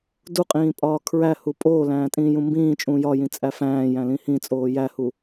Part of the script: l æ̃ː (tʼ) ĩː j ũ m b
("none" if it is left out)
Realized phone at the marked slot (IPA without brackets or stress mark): tʼ